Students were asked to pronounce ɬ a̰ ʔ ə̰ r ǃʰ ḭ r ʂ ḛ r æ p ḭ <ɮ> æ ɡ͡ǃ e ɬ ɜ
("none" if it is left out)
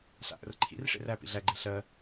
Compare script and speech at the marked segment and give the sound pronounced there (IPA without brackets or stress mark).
ɮ